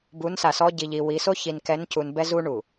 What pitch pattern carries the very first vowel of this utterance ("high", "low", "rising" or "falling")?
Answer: rising